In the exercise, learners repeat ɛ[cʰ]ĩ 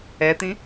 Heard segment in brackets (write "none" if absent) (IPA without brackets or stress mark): t̪